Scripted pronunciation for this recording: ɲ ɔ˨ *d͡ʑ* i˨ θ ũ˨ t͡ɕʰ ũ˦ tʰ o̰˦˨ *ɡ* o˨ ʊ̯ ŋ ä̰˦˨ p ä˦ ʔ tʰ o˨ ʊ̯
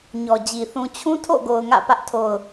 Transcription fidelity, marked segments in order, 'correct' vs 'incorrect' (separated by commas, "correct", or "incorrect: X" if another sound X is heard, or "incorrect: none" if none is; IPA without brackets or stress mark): correct, correct